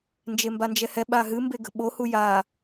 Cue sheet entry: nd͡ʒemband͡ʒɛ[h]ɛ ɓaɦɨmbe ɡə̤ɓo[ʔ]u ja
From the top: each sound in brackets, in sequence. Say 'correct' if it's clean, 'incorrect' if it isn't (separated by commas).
correct, incorrect